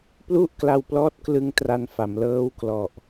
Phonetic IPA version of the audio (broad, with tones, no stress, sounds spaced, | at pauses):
p l u˥˩ ʔ k l a˧ w p l ɔː˦˥ t̚ k l ɯ˧ ŋ t r a˧ n f a˩˦ m l ɤː˦˥ w k l ɔ˨˩ ʔ